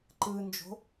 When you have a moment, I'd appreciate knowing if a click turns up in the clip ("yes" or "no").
yes